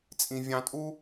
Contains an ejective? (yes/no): yes